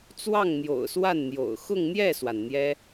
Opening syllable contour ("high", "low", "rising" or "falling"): falling